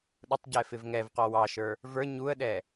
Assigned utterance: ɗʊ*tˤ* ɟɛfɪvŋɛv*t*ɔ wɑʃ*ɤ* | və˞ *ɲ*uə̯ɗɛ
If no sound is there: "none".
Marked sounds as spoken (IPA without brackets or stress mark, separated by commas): tˤ, q, ə˞, ɲ